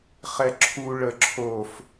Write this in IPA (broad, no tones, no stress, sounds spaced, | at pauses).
χ ɛ ǁʰ u ɭ ə ǁʰ o f